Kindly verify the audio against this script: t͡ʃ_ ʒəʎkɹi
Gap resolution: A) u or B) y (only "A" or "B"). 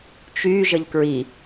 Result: B